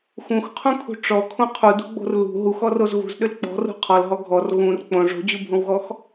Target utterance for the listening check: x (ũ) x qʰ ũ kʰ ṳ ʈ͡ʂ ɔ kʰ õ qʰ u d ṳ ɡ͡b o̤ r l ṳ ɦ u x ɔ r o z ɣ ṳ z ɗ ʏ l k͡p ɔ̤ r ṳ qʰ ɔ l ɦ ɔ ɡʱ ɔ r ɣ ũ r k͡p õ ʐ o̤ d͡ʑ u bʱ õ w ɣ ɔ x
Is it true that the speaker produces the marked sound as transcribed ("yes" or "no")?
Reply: yes